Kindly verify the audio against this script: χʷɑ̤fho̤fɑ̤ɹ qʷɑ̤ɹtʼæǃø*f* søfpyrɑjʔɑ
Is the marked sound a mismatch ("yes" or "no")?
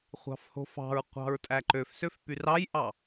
no